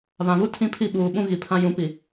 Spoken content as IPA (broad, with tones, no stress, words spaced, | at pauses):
βã˨βu˦ tʰĩ˦pʰi˦˨ ɓuː˨ ɓũ˦ ɣi˨pʰã˦jũ˨˦ pi˨